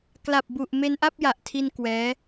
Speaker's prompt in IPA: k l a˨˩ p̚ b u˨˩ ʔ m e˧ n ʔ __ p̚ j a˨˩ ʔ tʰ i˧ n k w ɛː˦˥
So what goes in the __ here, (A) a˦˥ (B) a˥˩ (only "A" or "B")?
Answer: B